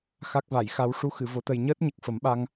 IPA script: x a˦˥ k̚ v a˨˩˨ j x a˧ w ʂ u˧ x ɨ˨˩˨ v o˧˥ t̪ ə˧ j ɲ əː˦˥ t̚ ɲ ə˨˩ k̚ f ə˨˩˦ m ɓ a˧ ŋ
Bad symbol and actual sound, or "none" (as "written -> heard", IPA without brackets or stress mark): none